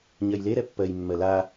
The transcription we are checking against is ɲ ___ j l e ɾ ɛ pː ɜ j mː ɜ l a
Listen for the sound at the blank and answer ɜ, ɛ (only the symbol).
ɜ